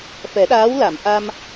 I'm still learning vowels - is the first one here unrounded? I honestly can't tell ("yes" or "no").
yes